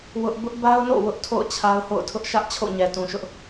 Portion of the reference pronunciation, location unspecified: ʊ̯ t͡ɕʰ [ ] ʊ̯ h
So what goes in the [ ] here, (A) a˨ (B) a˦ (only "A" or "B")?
B